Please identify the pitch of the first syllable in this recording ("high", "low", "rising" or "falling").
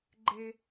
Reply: high